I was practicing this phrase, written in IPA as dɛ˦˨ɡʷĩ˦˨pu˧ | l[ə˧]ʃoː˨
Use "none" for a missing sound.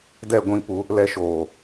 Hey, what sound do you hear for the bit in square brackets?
ɛ˧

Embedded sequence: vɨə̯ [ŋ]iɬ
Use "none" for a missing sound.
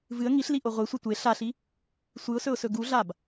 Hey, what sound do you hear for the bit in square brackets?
ŋ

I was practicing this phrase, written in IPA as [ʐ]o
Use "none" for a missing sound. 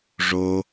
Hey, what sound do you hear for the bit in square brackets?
ʐ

